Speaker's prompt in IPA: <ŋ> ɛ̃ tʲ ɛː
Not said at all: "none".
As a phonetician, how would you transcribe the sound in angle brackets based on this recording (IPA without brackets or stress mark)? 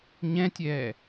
ɲ